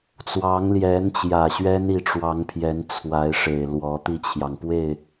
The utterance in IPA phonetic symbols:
t͡swɑ˧˥ŋljɛ˧˥nt͡ɕjä˨˩ ɕɥɛ˥ni˧˥ʈ͡ʂwɑ˧˥ŋpʰjɛ˧˥n t͡sʰwa˧˥ɪ̯ʂe˨˩ɪ̯ lwɔ˧˥ t̪i˥˩t͡ɕʰjɑ˩ŋ pwe˥˩ɪ̯

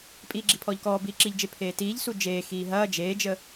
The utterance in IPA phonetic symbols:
pʼiːɡ͡ǁipʰɔːʎkɔː biːǁiʎd͡ʒe pʰeːtiːʎsu d͡ʒeː xiːɦɐː d͡ʒeːd͡ʒə

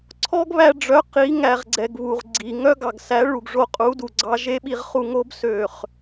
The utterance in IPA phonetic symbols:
ǀʰɔ˦ɡβæ˧ɖ͡ʐœ˨˦ qi˨˦ ŋæ˨ʁɡ͡ǀɛ˨ɡ βu˨ʁɡ͡ǀi˨ ŋœ˦ɡɑ˨ɡsæ˨˦ ɭu˨ɡʐo˧qʼu˨˦du˨ ɡ͡ǀɑ˧ ʒe˦ ɓi˧ʁχu˧ŋo˦b sø˨χ

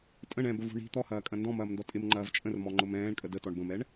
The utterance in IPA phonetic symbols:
tʼə̃ɳ ɛ̃bəvṳ ɳi̤ t̪ɔhɐːkʼɐ̃ ndɔ̃mɐːmndɔ tʼɪmŋ͡ǃɐːv t͡ʃʼə̃rmɔŋ͡ǃʊm ɛ̃ːɳkʼə dətɔɳ bə̃mɛɳ

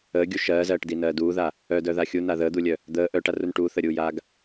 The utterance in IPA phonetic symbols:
əːɡʲu ʃɜːzɜːʈdinɜː duːða | œdœða xʲuna ðəːd̪ulʲœ | d̪əː ʔœʈarun ʈuθəɾʲuːjaːɡ

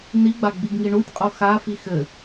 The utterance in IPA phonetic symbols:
niɡ͡ba ɡ͡biɡŋiɳutʲqʼo xafi xɘ

